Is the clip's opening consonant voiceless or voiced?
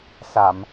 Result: voiceless